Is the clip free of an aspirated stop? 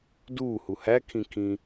no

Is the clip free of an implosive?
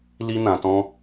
yes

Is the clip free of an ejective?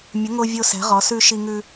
yes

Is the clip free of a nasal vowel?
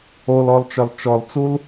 yes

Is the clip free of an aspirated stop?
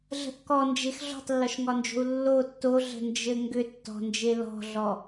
yes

